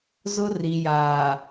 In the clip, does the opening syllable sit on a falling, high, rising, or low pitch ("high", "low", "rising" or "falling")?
high